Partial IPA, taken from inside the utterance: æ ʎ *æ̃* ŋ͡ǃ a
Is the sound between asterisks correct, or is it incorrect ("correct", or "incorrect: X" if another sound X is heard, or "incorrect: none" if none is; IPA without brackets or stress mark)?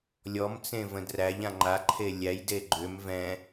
incorrect: ã